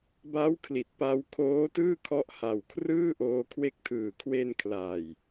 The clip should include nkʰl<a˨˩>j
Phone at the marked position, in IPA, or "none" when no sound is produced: a˨˩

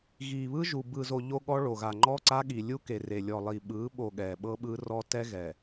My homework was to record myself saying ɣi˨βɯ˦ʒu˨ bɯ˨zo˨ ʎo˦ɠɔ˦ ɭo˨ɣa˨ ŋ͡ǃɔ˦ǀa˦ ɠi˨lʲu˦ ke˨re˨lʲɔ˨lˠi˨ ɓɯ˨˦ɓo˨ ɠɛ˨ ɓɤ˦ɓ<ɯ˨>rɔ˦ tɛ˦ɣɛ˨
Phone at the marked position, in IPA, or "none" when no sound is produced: ɯ˦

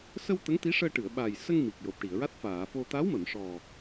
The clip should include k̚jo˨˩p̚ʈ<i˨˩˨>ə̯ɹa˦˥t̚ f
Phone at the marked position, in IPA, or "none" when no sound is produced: i˨˩˨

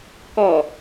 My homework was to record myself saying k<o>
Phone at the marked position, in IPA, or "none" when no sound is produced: ɔ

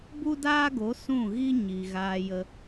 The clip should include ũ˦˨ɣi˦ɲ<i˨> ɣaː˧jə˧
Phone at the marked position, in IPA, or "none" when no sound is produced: i˨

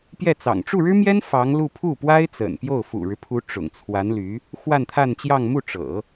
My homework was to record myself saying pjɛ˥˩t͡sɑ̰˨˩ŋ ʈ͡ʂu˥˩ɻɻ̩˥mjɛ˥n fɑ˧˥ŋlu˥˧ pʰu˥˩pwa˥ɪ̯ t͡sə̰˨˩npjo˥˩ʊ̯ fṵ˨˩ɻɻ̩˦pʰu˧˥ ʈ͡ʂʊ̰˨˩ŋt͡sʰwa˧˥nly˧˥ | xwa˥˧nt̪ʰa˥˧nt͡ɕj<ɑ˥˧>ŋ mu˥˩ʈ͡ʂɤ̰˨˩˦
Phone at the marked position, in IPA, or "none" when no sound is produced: ɑ˥˧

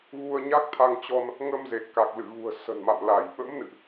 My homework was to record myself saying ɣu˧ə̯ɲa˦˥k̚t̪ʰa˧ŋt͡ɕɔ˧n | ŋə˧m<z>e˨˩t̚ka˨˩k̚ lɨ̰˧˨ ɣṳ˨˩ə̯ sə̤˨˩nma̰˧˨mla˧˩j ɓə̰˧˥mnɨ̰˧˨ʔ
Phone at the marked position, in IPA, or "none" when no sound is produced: z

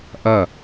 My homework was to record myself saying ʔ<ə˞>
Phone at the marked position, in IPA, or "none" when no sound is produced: ɐ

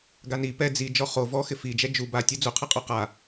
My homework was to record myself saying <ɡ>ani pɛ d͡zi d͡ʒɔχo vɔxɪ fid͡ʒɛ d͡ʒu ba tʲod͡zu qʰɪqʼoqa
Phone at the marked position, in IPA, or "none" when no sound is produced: ɡ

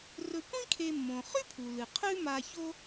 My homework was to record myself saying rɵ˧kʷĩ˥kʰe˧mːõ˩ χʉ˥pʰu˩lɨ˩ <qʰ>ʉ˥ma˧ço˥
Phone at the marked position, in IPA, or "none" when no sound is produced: qʰ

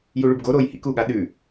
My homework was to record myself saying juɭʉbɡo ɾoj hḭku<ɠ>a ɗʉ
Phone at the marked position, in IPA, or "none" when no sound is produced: ɠ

